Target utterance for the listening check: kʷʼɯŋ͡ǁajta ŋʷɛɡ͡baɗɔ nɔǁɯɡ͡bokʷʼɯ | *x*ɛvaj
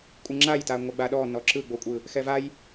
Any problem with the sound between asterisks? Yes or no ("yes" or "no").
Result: no